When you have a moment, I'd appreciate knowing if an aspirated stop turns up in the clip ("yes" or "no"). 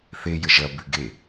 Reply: no